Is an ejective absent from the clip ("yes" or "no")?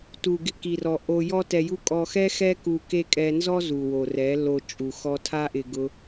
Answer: no